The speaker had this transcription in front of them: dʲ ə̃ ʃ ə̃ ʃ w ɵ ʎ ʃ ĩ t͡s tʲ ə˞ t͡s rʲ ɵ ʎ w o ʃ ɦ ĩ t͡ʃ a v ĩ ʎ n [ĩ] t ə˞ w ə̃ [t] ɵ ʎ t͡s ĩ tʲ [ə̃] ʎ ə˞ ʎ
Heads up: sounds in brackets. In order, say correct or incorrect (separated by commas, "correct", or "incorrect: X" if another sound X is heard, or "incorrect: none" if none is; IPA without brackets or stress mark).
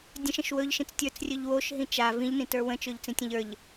correct, incorrect: t͡ʃ, correct